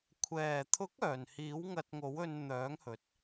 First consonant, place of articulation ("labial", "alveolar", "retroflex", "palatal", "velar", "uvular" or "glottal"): velar